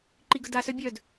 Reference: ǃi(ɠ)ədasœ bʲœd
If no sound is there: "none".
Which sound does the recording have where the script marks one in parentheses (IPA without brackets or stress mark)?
ɡ